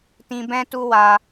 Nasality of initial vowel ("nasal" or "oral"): nasal